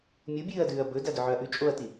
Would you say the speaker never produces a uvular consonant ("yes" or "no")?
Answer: yes